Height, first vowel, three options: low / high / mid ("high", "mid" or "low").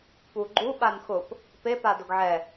high